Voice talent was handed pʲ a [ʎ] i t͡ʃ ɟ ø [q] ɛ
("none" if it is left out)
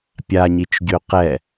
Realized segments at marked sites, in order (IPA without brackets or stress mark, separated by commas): ɲ, q